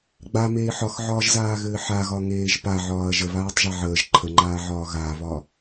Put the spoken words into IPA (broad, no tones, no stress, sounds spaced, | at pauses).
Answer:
ɡ͡b a m eː ħ ɒ x ʕ ɒː ʒ z aː ɣ ɘː ħ a ɣ ɒ ŋ eː ʒ p a ʕ ɒː ɐ̯ ʒ ə β aː tˤ ʒ a ʕ əː ʒ ǃʰ ə ŋ͡ǃ aː ʕ ɒː ɣ a β ɒ